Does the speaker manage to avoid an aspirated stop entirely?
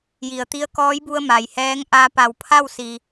no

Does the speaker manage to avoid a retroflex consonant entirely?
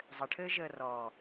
no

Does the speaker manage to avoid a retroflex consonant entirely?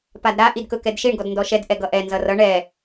no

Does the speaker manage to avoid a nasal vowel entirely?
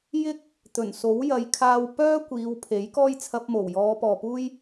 yes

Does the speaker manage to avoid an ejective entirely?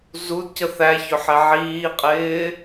no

